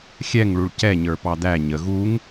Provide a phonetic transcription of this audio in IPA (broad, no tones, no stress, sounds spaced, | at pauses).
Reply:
xʲ ɛ ŋ ɭ u ɭ c ɛ ɲ ə˞ p ɑ d̪ æ ɲ ə ɣ u ŋ